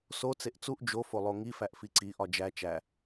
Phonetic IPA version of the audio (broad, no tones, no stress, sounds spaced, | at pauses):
s o t͡s e ʔ t͡s u ʔ d͡ʒ o f o lˠ o ŋ i f æ ʔ f i ǀ i ʔ ɒ d͡ʒ æ t͡ʃ æ